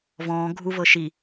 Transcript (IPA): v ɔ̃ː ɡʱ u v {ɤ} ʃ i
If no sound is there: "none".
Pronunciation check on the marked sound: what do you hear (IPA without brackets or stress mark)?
ɤ